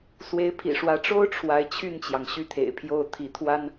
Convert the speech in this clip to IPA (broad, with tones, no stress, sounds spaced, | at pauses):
s w e˧˥ ɪ̯ pʰ ḭ˨˩ ʂ w ä˧˥ ʈ͡ʂ o˥ ʊ̯ ʈ͡ʂʰ w a˧˥ ɪ̯ t͡ɕʰ y˥˩ n t͡ɕ j ɑ˩ ŋ ɕ y˥˩ t̪ʰ ḛ˨˩ ɪ̯ pʰ j o˥˩ ʊ̯ t̪ʰ i˧˥ t̪ʰ w a˥ n